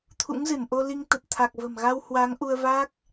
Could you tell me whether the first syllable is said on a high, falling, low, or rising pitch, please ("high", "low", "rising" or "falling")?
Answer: rising